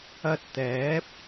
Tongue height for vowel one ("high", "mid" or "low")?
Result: low